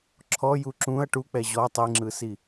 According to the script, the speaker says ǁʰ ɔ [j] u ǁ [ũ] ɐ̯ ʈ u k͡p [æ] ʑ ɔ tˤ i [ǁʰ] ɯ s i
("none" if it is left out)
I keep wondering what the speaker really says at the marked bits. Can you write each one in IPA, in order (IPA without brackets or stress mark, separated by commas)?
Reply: j, ũ, ɛ, ŋ͡ǁ